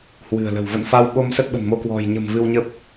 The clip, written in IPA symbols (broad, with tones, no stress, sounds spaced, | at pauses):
h w ɨ̤˨˩ ə̯ l ə̤˨˩ w v ə̰˧˨ n f a˧ w ɓ o˧ m s ə˦˥ t̚ ɓ ə̤˨˩ n m o˧ k w ɔ̤˨˩ j ɲ ə̤˨˩ m v ɨ˧ w ɲ ə˦˥ p̚